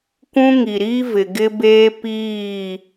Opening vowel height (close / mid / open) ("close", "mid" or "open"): close